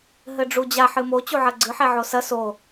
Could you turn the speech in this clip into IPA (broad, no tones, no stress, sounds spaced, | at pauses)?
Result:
ɦ ɘ ɖ͡ʐ u d͡ʑ a ħ ɨ m o t͡ɕ u ʕ ɐ ɡ͡ǀ ɨ ħ ɛ ʕ o s ɐ s o